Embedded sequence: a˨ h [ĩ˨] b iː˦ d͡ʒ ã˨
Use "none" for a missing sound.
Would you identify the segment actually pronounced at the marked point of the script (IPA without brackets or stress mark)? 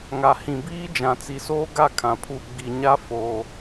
ĩ˨